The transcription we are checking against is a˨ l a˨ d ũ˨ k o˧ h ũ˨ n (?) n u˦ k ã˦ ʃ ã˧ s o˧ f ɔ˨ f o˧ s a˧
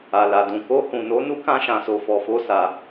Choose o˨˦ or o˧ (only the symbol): o˨˦